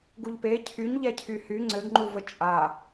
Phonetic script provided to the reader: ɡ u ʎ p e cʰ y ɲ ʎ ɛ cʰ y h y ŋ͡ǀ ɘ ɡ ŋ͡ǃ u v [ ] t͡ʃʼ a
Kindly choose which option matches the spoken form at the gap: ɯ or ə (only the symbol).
ə